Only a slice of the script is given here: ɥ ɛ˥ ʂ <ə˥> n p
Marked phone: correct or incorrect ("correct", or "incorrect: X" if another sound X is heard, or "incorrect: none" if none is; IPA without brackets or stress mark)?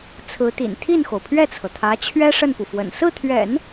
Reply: incorrect: ə˥˩